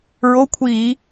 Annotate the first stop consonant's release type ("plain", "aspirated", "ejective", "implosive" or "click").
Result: aspirated